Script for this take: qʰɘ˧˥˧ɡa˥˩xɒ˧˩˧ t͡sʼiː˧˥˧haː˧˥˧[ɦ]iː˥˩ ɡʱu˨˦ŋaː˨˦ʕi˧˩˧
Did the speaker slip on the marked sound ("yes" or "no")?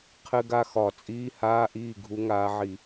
yes